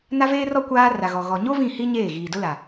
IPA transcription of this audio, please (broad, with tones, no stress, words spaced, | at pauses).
na˦veː˦rɔ˦ kʷaː˦ ra˨ɣɔ˨ ɣɔ˨ ɲo˦ vĩ˦˨ hi˦ ɲeː˦˨ɣiː˨dʊ˦la˨